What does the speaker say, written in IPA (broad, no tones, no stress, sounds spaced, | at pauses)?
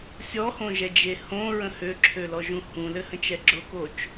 sʲ ɔ h õ ʒ ɛ d͡ʒ e h õ ɹ ə̃ h ø ǁʰ ø l ɔ ʒ ũ h ũ l ɘ h ə̃ t͡ʃ ɛ ɡ͡ǁ ʊ k o t͡ʃ